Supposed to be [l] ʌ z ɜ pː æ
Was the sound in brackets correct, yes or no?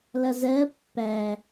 yes